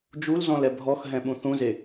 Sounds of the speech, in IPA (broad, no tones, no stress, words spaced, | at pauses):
d͡ʒulzɔ̃l ɛbʱɔxɦɛ̃ ɓũθũze